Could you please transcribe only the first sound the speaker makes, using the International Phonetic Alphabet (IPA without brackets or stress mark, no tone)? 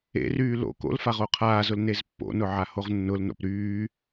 ḛ